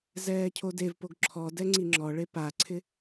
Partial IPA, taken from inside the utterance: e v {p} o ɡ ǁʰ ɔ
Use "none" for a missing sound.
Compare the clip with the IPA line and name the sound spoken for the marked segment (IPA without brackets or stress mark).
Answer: p